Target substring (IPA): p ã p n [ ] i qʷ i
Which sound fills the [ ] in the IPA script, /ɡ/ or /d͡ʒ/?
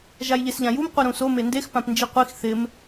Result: d͡ʒ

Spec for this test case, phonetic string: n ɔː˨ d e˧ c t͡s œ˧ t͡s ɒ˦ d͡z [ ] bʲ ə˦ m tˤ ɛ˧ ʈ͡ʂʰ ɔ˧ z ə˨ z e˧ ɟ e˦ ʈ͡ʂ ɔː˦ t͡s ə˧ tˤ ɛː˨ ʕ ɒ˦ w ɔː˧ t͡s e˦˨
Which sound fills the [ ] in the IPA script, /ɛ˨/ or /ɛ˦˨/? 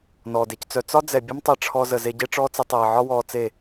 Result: ɛ˨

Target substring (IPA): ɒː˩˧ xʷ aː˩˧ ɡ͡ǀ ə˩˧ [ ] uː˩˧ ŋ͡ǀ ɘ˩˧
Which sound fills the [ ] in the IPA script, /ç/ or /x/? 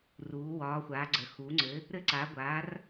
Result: x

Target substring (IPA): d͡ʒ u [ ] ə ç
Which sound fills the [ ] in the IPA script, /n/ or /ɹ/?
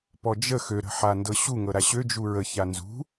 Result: ɹ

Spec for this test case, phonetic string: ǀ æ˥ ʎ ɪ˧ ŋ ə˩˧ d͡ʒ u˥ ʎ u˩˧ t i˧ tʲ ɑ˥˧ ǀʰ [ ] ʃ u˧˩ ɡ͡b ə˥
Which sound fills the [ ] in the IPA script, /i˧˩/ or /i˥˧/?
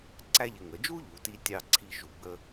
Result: i˥˧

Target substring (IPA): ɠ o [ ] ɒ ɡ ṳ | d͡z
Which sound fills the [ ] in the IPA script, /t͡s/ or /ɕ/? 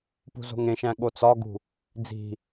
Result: t͡s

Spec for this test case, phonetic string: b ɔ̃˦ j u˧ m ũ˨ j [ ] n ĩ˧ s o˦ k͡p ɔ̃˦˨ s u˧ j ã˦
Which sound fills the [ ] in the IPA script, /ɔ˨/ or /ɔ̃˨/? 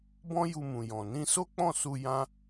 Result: ɔ̃˨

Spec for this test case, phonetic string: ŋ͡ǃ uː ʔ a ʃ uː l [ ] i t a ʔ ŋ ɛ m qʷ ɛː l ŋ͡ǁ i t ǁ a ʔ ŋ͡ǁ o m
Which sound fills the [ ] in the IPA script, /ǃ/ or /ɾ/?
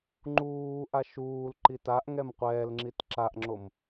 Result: ǃ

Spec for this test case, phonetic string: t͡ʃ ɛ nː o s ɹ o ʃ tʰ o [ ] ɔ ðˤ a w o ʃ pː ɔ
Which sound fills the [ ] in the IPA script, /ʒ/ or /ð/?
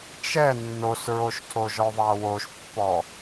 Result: ʒ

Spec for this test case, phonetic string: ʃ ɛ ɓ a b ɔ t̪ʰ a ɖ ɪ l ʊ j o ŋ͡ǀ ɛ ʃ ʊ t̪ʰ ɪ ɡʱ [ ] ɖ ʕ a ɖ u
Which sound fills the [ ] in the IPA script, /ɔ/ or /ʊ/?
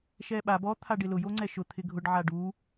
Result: ʊ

